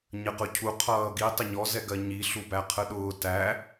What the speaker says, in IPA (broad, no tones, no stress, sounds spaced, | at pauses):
ɲ ə q ʊ cʰ u qʰ ʌː ɡ i tˤ ɪ ɲ ɔ z ɛ ɡ ɜ ɲ i ɬ u b æ qʰ ə ɗ ʊː t æ